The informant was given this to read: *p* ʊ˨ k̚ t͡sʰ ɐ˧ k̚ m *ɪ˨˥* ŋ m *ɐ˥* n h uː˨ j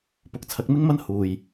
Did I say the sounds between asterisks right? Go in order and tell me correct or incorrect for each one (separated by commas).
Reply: correct, incorrect, correct